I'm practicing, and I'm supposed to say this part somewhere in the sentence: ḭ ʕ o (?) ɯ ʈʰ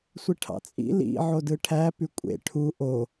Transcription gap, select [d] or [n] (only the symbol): d